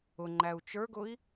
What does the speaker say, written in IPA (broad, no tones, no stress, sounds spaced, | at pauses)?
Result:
ʊ ŋ͡ǃ æ u̯ t͡ʃ ə˞ ɡ ʊ i̯